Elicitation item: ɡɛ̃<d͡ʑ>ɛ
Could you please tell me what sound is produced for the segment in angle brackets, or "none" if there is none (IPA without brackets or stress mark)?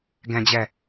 d͡ʑ